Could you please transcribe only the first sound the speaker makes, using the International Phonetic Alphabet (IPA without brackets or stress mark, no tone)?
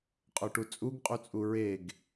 qʼ